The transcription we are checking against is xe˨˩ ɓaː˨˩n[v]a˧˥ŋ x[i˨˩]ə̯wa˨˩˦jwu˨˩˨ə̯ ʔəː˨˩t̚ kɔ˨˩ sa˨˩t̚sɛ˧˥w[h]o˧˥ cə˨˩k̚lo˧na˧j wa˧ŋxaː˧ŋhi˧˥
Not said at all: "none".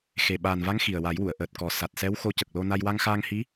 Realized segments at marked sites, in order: v, i˨˩, x

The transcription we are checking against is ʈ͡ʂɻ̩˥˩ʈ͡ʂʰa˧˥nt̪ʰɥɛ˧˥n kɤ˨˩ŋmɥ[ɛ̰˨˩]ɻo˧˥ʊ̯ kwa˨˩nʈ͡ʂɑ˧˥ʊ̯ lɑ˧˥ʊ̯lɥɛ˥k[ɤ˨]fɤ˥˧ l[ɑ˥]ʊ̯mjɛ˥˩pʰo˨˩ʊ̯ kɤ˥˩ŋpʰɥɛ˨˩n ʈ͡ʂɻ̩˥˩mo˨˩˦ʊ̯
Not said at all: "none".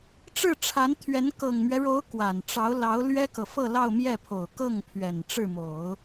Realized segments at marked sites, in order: ɛ˦, ɤ˨, ɑ˥˧

